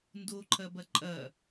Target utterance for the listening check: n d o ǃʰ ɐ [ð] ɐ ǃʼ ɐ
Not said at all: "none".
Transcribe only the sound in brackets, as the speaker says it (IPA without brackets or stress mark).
b